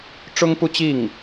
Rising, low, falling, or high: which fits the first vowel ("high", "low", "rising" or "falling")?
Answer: high